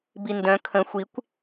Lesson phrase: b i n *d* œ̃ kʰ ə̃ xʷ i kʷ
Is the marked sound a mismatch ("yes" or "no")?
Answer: no